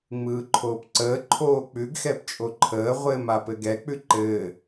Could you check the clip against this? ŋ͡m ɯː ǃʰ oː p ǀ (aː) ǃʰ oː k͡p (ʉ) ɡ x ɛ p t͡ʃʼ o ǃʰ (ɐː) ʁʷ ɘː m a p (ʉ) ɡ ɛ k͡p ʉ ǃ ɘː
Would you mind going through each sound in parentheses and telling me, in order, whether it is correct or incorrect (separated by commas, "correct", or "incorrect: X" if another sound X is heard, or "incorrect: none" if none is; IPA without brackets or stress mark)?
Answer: incorrect: əː, correct, incorrect: əː, incorrect: ɘ